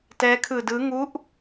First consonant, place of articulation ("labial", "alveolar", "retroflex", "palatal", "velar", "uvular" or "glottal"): alveolar